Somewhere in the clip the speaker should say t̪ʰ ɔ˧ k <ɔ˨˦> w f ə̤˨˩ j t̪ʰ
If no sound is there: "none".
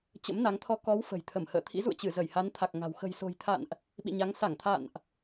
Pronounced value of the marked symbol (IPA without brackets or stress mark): ɔ˨˦